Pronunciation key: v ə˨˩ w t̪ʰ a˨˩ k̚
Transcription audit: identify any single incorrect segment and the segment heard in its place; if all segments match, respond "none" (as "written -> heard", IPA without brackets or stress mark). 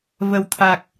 none